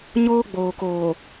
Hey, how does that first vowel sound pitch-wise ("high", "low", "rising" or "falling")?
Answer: high